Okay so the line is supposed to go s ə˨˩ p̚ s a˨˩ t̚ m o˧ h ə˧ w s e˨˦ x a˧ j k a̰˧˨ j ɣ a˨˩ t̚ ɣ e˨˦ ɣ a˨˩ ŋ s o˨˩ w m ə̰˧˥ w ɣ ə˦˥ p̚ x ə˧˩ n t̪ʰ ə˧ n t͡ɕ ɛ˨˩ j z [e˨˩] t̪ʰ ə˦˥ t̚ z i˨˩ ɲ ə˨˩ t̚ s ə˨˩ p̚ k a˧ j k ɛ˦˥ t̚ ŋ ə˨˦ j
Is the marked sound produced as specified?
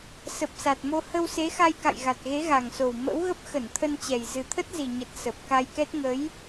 no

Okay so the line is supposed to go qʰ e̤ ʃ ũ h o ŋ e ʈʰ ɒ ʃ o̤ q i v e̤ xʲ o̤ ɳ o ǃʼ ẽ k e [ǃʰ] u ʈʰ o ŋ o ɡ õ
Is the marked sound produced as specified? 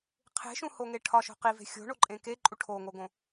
no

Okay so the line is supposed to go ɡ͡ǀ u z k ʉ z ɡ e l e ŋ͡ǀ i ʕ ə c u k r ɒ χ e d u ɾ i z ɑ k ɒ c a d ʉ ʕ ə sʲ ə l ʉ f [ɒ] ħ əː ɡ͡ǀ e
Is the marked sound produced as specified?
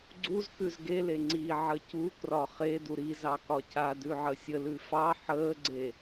no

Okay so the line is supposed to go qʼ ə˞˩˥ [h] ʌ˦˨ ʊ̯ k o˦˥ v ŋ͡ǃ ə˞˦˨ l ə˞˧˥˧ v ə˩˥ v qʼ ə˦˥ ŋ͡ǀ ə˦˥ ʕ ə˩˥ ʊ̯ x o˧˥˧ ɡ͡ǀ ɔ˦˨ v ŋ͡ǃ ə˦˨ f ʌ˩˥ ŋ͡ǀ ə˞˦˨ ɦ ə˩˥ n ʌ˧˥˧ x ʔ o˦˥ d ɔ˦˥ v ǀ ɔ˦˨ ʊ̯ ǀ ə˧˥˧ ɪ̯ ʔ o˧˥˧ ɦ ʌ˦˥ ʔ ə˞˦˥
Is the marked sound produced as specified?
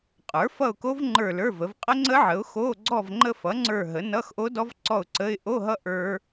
no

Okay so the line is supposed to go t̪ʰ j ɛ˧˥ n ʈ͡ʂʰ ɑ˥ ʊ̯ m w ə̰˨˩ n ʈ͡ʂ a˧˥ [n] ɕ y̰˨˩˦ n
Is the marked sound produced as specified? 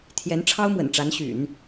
yes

